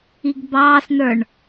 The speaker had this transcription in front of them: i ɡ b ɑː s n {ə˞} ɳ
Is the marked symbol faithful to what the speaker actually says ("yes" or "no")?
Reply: yes